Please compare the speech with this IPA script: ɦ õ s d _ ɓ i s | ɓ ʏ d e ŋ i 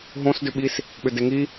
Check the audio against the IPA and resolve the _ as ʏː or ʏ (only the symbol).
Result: ʏ